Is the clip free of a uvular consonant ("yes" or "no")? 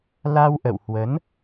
yes